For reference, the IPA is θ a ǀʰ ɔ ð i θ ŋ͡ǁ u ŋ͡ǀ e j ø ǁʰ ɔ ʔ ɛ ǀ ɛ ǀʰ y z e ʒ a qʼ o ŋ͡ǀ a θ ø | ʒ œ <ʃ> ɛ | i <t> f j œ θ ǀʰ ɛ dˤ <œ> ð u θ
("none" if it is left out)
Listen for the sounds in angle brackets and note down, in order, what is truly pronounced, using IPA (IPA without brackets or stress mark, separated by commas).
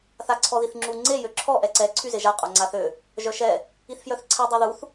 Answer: ʃ, θ, ø